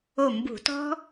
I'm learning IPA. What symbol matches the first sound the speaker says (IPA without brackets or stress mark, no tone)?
o